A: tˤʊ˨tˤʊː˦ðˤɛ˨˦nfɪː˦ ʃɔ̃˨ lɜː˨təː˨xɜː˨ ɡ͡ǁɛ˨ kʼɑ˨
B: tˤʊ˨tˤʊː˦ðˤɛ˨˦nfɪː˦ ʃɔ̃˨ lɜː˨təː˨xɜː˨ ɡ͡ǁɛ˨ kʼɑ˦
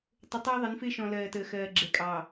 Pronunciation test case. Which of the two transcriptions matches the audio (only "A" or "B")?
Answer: A